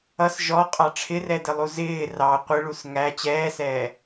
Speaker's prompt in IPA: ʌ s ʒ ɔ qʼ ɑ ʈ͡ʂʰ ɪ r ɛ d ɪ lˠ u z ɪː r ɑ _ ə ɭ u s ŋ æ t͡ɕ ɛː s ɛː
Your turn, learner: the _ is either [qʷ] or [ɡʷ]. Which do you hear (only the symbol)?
qʷ